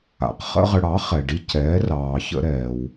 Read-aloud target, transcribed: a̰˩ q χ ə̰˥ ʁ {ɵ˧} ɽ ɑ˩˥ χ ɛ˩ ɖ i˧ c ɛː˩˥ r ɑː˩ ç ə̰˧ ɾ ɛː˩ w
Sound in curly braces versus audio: incorrect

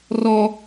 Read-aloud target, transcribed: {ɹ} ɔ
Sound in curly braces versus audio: incorrect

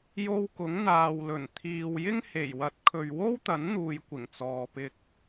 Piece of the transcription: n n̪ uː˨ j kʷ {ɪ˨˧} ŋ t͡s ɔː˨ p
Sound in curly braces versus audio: incorrect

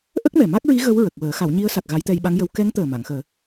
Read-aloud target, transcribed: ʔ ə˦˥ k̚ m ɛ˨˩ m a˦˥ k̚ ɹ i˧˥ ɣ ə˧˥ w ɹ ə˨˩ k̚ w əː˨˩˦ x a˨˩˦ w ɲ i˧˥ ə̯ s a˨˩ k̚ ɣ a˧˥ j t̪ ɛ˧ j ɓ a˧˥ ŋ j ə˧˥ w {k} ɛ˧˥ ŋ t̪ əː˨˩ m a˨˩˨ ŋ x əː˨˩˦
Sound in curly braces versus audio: correct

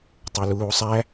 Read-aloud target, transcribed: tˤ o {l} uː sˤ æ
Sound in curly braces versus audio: correct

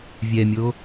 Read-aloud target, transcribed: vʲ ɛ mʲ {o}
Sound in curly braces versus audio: correct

